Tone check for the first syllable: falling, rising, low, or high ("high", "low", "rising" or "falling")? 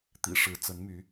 low